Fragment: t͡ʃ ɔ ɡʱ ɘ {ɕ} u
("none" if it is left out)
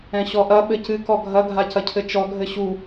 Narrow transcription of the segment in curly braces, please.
ɕ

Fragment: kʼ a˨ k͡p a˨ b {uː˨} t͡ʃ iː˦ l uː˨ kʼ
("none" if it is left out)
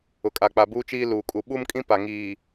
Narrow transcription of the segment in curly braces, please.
uː˦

